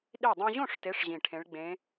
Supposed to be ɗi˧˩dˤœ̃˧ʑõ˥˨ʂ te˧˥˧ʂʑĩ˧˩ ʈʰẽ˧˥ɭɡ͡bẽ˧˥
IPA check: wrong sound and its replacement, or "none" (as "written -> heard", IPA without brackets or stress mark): none